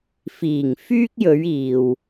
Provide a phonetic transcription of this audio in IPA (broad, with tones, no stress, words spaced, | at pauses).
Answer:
fiː˨˩ŋfyː˥k̚jɵ˨˧ɥ iː˨w